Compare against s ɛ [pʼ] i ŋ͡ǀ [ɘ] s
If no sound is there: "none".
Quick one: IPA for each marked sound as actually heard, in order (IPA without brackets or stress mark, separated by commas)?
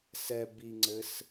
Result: b, ɘ